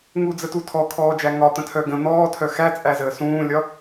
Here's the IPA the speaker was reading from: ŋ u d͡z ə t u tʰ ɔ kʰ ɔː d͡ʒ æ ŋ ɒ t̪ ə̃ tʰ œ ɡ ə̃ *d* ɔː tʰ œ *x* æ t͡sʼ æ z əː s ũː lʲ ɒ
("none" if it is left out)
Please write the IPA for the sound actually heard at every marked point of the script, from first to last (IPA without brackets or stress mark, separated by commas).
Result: n̪, x